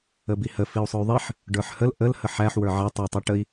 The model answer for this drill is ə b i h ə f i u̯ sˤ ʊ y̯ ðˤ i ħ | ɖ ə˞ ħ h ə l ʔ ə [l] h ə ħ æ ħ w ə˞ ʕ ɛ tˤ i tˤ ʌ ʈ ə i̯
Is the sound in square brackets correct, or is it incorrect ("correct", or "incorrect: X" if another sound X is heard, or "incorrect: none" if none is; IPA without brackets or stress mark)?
correct